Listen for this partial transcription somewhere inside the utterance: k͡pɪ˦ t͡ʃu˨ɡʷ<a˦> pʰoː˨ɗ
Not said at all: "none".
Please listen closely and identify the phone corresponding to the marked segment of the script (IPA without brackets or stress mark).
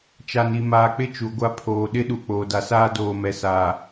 a˦